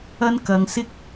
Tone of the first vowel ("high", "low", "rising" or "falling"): high